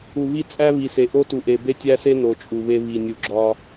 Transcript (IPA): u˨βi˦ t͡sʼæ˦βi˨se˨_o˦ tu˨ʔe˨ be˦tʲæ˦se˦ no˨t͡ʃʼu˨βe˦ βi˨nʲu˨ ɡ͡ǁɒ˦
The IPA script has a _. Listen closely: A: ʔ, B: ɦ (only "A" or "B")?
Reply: A